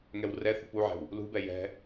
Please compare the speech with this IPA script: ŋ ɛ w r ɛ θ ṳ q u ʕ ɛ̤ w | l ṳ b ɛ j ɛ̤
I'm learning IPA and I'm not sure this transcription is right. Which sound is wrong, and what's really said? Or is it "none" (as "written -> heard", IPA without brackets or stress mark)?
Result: q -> p